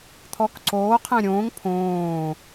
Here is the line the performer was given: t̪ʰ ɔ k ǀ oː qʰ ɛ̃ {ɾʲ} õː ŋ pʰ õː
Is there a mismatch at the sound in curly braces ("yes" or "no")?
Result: no